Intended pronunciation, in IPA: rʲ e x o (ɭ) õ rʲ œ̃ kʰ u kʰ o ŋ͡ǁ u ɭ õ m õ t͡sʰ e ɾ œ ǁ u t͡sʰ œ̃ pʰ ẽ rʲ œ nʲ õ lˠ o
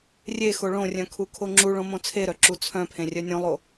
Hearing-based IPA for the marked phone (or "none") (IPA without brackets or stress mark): ɭ